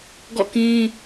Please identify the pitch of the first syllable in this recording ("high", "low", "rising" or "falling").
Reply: falling